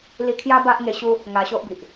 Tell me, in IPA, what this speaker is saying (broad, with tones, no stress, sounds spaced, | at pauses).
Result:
l i˧ kʰ j a˦ b a˦ ʔ ŋ e˧ ɕ u˦ | ŋ a˧ ɕ o˦ ʔ b i˨ ʔ